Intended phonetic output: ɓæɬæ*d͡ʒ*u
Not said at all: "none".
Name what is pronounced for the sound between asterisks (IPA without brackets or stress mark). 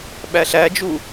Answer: d͡ʒ